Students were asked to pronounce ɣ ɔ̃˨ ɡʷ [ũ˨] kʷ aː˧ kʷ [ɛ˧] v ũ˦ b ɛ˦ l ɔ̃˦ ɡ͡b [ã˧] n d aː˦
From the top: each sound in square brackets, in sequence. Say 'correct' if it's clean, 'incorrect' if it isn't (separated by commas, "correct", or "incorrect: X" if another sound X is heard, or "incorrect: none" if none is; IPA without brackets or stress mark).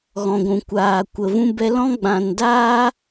correct, incorrect: ə˧, correct